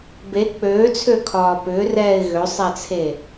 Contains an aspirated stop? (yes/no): yes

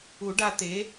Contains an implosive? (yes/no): no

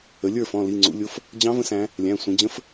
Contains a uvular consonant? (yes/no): no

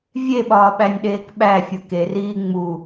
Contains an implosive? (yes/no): yes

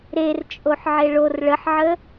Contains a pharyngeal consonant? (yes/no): yes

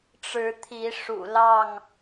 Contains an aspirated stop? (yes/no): yes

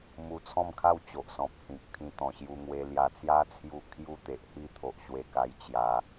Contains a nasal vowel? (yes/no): yes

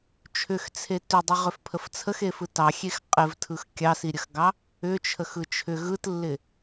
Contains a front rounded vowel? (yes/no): yes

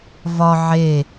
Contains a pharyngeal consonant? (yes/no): yes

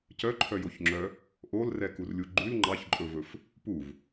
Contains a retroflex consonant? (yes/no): no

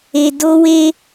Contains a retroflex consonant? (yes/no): no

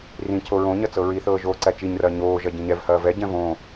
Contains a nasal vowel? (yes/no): yes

